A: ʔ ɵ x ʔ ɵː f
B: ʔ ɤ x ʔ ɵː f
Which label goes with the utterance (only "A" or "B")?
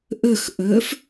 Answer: A